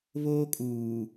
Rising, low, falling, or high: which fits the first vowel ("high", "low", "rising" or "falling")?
high